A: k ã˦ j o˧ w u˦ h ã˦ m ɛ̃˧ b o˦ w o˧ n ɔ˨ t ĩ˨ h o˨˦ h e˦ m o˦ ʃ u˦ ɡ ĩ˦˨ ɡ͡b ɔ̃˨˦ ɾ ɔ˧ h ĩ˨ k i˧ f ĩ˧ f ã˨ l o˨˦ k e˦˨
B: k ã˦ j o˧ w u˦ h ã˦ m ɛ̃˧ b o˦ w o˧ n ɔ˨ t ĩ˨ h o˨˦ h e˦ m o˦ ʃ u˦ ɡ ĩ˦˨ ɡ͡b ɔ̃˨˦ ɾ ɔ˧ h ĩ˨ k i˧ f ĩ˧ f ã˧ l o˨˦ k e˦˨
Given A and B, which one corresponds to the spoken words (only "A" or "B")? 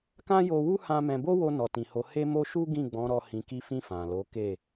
A